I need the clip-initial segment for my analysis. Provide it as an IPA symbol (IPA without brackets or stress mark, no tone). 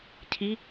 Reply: cʰ